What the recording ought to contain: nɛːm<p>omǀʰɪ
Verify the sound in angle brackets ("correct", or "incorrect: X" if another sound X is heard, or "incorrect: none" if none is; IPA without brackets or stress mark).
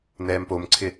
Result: correct